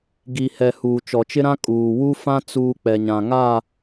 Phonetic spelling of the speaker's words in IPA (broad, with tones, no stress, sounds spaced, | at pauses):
ɡ i˨ h ɛ˨ h uː˨ t͡ʃ ɔ˨ t͡ʃ ɪ˦ ɾ ã˦ kʼ uː˨ w u˦ f ã˦ t͡s uː˨ k͡p ɛ˨ ɲ ã˨ ŋ a˦˨